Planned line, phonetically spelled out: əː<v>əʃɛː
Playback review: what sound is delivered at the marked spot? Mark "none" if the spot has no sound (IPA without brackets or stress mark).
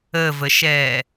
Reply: v